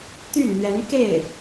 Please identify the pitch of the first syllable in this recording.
falling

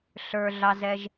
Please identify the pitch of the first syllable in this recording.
low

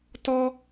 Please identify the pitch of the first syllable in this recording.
high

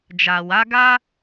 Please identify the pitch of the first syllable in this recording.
low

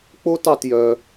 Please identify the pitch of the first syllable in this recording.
high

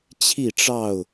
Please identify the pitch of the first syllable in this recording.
falling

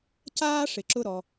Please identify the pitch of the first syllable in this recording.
high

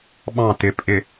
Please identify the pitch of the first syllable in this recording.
falling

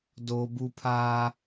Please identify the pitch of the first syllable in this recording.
high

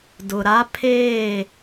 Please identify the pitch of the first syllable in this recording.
low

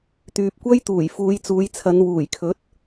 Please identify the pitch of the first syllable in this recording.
low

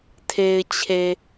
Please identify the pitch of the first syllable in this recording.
low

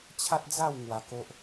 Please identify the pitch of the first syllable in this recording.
high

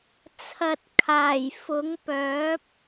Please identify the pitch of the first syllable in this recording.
low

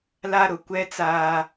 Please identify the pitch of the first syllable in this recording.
high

